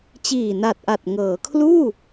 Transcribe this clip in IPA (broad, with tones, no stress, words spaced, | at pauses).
t͡ɕiː˨˩na˨˩t̚ʔa˨˩t̚ŋɤː˩˦ kʰluː˥˩